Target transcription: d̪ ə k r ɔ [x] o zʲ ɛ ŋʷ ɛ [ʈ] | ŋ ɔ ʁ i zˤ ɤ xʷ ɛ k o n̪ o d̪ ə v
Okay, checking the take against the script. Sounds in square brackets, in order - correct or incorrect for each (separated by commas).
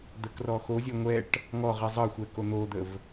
correct, correct